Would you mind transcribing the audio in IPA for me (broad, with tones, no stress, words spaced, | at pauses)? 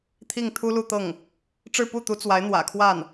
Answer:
t̪ʰi˥˩ŋt̪ʰu˥lu˥˧t̪ɤ˥˩ŋ | ʈ͡ʂɻ̩˥˧pu˥˩t̪u˧˥ t͡swa˧˥ɪ̯n̪wä̰˨˩kʰwa˥˩n